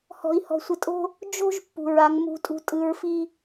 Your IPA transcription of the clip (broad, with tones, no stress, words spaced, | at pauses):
hɔ̤˨i̯hɔ̤˨sʷə˨tʼo̤˦ | d͡ʒo̤˦ʒ pːṳ˨ɹa˨˦ŋ mṳ˨˦ tʼṳ˨ tʼɯ˨˦ɹfi˦